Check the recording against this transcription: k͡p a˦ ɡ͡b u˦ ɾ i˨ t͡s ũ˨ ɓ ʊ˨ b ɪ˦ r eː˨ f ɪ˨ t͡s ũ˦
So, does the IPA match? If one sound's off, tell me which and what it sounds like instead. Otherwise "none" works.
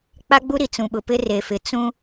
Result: b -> p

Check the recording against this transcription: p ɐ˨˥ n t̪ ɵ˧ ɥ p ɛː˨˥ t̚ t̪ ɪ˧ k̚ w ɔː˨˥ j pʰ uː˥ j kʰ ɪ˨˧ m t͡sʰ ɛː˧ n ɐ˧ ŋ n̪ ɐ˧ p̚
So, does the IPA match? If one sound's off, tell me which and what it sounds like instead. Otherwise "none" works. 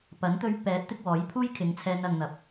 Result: m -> ŋ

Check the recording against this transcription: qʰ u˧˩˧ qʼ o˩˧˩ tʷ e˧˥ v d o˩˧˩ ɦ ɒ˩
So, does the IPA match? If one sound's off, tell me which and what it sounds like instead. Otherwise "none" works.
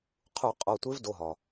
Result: none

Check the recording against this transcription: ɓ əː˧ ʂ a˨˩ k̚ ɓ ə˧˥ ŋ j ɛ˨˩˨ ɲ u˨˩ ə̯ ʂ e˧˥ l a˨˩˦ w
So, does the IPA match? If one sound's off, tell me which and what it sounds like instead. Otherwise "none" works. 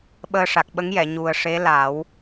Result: none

